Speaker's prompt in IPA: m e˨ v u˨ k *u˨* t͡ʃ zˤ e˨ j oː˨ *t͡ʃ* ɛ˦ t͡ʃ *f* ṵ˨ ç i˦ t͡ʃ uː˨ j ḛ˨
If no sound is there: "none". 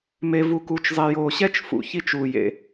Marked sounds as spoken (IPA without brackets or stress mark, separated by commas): u˨, ɕ, f